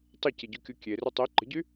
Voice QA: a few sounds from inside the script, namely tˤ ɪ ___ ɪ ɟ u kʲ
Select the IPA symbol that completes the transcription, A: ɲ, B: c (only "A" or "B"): B